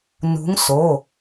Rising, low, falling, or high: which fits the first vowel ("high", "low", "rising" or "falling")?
rising